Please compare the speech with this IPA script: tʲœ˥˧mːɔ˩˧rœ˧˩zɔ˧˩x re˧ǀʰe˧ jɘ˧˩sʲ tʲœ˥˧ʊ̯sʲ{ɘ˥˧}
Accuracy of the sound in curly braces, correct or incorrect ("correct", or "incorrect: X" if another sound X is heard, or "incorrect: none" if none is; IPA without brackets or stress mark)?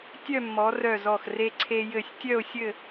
correct